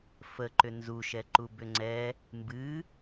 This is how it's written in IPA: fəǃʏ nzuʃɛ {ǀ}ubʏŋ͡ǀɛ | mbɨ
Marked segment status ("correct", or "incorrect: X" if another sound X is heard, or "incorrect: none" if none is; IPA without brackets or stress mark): incorrect: ǃ